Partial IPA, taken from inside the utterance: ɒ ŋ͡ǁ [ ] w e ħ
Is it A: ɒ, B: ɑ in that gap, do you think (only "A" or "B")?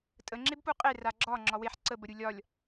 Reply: A